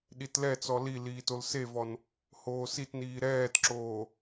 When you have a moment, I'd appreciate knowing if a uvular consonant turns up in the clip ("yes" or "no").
no